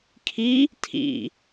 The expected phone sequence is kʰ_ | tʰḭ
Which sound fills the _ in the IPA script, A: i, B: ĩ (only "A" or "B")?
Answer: A